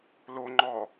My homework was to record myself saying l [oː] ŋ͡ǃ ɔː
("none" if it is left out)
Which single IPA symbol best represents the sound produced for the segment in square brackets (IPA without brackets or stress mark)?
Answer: o